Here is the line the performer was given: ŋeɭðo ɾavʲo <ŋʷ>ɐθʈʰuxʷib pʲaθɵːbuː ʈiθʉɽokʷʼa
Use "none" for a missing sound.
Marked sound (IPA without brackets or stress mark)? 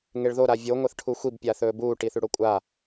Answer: ŋʷ